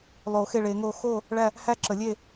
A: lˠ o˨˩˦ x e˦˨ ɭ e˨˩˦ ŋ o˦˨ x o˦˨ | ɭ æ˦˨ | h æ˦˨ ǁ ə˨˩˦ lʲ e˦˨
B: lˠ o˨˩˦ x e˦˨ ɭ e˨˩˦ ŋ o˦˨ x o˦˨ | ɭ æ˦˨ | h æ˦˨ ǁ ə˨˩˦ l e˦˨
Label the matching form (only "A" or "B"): A